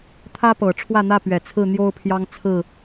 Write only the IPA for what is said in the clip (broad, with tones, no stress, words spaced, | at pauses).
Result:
t̪ʰä˦pɤ˨˩ ʈ͡ʂʰwä˥˨n̪ä˥˨pɥɛ˨˩ t͡sʰɹ̩˥˨n̪jo˦ʊ̯pʰjɑ˦ŋt͡sʰɹ̩˥˨